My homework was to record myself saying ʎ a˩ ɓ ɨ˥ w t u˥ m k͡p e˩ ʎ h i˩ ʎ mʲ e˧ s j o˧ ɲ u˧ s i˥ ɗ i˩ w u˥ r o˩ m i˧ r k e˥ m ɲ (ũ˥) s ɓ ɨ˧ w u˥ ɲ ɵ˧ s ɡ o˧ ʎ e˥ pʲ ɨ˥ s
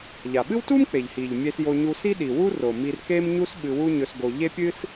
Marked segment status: incorrect: u˥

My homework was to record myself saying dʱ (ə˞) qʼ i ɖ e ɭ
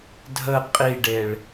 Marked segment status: incorrect: ə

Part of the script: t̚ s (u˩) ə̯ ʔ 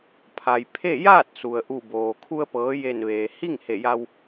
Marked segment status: correct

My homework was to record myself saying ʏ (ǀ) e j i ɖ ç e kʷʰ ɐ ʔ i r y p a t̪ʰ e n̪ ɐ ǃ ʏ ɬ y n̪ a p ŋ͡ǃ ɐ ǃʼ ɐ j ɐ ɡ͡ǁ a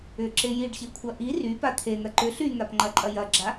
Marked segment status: incorrect: ǁ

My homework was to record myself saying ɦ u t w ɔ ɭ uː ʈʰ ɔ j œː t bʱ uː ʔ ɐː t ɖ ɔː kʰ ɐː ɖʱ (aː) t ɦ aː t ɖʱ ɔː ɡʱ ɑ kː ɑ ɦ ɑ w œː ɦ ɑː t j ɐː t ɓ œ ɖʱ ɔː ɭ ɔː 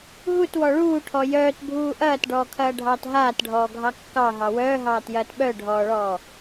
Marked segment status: incorrect: ɑː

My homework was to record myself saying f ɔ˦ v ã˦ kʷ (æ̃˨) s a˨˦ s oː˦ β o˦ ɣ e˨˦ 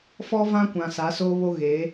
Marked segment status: incorrect: ã˨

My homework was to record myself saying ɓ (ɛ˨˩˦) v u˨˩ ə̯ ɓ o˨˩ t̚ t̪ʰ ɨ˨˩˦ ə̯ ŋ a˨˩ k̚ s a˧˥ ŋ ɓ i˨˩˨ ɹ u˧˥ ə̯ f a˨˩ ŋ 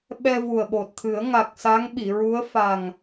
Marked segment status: incorrect: ɛ˧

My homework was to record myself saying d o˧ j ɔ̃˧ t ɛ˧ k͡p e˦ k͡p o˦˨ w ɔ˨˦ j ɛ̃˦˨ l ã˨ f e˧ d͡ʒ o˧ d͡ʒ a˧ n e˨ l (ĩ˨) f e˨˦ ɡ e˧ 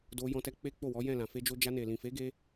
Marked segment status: correct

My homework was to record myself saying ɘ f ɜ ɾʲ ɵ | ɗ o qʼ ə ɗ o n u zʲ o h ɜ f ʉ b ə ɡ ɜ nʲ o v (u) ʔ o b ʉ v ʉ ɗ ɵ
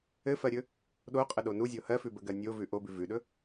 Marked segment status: incorrect: ʉ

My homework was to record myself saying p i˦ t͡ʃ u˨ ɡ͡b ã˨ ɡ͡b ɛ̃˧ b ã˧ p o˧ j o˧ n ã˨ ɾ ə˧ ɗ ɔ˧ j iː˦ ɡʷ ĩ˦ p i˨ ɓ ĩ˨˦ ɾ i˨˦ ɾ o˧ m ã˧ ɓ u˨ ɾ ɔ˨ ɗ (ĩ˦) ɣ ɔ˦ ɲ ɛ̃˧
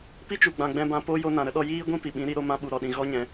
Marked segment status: incorrect: ĩ˨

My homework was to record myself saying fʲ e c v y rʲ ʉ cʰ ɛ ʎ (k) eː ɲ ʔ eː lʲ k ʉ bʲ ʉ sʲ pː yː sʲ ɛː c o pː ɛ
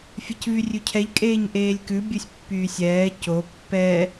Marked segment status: incorrect: kʼ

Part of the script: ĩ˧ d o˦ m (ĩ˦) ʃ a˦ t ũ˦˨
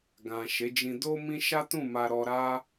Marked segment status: correct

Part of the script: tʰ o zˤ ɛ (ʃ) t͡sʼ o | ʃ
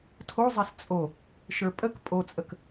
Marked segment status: incorrect: s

